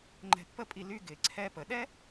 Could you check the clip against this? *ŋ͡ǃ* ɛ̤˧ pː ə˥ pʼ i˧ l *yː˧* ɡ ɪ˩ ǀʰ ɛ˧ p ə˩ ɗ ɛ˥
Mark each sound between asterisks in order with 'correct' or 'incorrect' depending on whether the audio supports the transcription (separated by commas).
correct, incorrect